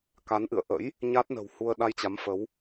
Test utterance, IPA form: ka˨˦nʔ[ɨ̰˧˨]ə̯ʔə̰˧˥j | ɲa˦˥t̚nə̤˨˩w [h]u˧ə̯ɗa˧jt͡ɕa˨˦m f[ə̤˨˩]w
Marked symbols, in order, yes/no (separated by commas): yes, yes, no